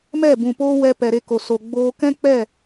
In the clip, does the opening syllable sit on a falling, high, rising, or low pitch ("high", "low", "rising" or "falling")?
falling